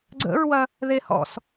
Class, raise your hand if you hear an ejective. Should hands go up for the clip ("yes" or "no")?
no